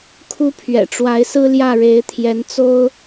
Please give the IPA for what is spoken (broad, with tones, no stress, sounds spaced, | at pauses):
kʰ u˥ pʰ ɥ ɛ̰˨˩ ʈ͡ʂ w a˧˥ ɪ̯ s ɹ̩˥ l j ä˥˩ ɻ e˧˥ ɪ̯ t̪ʰ j ɛ˧˥ n t͡s o˥ ʊ̯